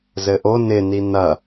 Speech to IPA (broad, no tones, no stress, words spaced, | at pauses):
zɘʔo nɪ ninɐ